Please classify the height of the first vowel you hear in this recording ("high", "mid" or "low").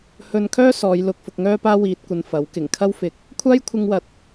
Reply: mid